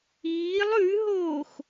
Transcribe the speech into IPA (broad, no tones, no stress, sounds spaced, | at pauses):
iː lˠ ʉ ɦ oː x